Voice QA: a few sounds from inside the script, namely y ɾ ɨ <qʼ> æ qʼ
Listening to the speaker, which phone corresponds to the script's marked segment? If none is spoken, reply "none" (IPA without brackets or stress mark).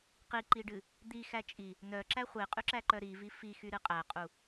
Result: qʼ